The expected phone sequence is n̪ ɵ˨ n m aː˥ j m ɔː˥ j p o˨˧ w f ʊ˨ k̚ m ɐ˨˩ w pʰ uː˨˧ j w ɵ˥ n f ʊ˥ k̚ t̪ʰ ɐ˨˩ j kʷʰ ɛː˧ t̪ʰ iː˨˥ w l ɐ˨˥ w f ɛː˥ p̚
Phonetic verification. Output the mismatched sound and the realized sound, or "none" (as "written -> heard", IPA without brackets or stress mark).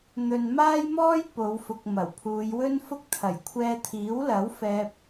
none